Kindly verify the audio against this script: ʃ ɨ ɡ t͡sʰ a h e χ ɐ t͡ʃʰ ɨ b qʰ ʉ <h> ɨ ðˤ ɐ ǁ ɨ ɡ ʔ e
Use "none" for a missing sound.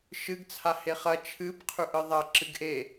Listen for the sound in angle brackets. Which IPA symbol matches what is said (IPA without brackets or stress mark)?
ʔ